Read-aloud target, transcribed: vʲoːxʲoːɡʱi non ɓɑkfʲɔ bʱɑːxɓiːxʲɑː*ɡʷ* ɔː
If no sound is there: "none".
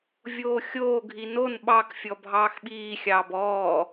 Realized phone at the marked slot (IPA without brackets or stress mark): b